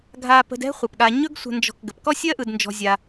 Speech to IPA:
ɡʱ a˧ p ə̤˧ d ɛ̤˦ χʷ ɜ˨ p ɠ a˧ ɲ ɵ˦ ɡ sʷ ə̤˧ n d͡ʒ ɔ̤˧ k ɡ ə˨ p k ɔ˦ sʲ ɜ˦ ʔ ɯ˧ d n d͡ʒ ɔ̤˧ zʲ a˧

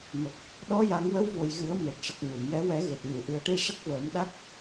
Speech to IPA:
m ə˨˩ k̚ | ɗ ɔ˧˥ j a˨˩˦ ŋ w ə˧˥ w v o˨˩ j ɣ ɨ˨˩˦ ə̯ m e˨˩ t̚ ʂ ɨ˨˩ k̚ ɲ o˨˩˨ m j ɛ˧˥ w ɛ˨˩˦ ɣ e˨˩ t̚ ɲ u˨˩˨ ʔ ɨ˨˩˦ ə̯ ʈ i˧ ʂ ə˦˥ k̚ v əː˨˩˦ m ɗ a˦˥ k̚

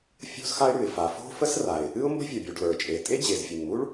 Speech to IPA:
fʲ o̤˥ z x a˥ ɪ̯ ɽ ʉ˩ ɪ̯ f a˩ f o̤˥ f ə˥ s r a˩ ɪ̯ | ɨ˥ ʊ̯ m b ə̤˥ vʲ ʌ˩ bʲ u˩ ɖ l ə˞˩ t͡ʃʼ e˩ tʼ e˥ d͡ʑ e˩ z fʲ ɨ˩ n m u˥ ɭ

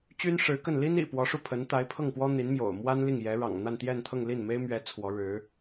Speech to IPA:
t͡ɕ y˥ n ʂ ɻ̩˧˥ k ə˥˩ n l i˥ n ḭ˨˩ p w ɔ˧˥ ʂ u˥˩ pʰ ə˧˥ n t̪ a˧˥ ɪ̯ pʰ ɤ˥˩ ŋ p w ɔ˥ n̪ i˧˥ n m j o̰˨˩ ʊ̯ m w a˥ n l i˥˩ ŋ j ɛ˧˥ ɻ ɑ̰˨˩ ŋ n̪ a˥˧ n t̪ j ɛ˥˧ n t̪ʰ ɤ˥˧ ŋ l i˥˩ n m e˥ ɪ̯ m ɥ ɛ˧˥ t͡sʰ w ɔ˧˥ ɻ ɻ̩˧˥

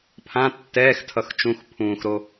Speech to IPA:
pʰ ã tː ɛː x tʰ ʌ x t͡ʃ ũ x pʰ ũː x ɾ o

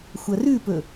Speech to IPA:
xʷ ɐ r ʉ p ɵ

